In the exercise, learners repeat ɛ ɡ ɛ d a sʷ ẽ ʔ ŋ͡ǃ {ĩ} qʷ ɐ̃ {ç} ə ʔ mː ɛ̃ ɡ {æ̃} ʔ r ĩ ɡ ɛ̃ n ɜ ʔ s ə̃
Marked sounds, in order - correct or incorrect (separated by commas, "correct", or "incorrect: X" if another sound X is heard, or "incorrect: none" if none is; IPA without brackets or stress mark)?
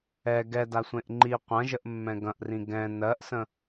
incorrect: i, incorrect: ʒ, incorrect: ɐ̃